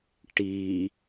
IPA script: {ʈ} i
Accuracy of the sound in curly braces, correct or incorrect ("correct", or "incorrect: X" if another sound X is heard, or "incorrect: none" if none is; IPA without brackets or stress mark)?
correct